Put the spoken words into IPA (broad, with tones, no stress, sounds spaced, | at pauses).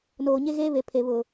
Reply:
n oː˨ ɲ e˦ ɣ eː˦ β e˨ pʰ e˨ β ʊ˨